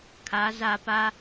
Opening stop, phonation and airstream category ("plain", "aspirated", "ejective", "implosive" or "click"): aspirated